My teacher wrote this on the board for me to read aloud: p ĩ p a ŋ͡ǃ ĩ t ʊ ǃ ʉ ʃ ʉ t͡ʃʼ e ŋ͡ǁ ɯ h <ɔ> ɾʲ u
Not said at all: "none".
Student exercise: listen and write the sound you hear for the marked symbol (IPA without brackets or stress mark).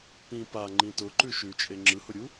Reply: ʊ